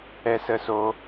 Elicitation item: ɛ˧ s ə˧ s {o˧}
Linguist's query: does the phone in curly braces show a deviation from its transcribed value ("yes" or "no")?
no